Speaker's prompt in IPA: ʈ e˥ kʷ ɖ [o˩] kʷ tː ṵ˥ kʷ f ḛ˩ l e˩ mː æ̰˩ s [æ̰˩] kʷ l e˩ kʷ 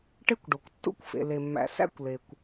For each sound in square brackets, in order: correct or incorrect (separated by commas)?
correct, incorrect